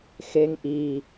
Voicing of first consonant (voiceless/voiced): voiceless